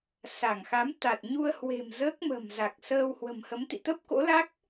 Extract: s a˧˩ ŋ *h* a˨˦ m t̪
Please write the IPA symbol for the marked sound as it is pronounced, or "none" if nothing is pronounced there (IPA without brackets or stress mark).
x